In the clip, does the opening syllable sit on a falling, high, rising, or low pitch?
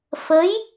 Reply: rising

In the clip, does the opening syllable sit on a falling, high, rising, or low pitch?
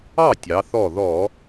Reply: falling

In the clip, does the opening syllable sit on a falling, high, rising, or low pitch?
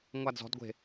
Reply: falling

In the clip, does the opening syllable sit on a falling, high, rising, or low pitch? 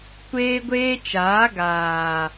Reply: high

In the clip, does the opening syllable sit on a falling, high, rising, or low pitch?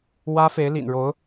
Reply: high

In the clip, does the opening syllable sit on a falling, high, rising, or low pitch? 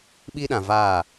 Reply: high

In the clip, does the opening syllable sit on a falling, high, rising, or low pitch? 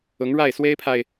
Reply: rising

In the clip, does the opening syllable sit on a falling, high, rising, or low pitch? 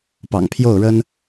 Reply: low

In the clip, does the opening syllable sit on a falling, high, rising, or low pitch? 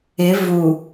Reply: rising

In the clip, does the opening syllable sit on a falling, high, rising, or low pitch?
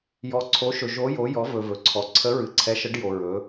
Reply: rising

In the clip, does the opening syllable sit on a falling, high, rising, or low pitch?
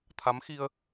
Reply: rising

